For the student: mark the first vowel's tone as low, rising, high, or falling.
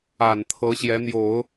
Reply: low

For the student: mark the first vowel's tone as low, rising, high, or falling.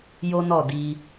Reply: high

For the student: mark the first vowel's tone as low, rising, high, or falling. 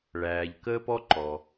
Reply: low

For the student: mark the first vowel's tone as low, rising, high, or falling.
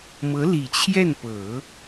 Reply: rising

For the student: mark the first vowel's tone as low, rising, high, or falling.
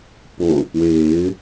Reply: low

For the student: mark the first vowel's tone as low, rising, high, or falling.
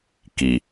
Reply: low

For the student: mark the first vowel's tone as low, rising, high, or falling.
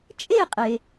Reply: falling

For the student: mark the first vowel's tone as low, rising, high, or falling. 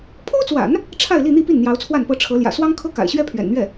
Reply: high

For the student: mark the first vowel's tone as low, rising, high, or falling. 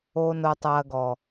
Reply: low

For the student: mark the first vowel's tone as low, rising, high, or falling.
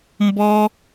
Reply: high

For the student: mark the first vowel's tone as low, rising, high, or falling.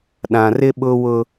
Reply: low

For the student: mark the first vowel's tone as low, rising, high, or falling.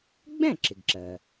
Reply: falling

